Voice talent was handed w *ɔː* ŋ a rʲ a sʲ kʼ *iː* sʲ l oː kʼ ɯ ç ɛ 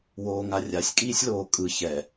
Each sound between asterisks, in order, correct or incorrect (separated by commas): incorrect, correct